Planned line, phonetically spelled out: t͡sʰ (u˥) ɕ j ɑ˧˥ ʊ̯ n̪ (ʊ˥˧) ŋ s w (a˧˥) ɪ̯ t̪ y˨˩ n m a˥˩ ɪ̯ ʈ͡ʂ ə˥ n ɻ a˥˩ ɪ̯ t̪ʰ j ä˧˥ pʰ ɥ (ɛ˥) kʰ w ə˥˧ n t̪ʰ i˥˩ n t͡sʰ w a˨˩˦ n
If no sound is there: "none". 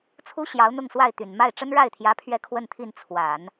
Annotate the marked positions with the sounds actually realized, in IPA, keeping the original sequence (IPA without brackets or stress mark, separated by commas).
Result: u˥, ʊ˥˧, a˥˩, ɛ˥˧